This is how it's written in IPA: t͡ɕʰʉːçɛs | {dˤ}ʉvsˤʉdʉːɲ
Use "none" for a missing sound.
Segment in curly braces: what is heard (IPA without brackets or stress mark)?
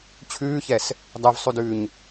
dˤ